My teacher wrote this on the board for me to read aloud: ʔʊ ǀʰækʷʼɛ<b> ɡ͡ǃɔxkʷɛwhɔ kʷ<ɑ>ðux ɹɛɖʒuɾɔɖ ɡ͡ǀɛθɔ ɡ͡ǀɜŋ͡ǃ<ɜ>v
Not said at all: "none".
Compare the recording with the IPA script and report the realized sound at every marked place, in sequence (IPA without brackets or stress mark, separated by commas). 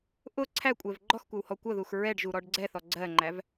v, ʌ, æ